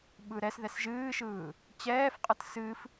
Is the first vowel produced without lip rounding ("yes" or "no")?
yes